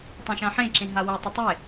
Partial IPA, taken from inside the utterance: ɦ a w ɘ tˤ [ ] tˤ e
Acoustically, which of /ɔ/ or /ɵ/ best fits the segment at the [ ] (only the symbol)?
ɵ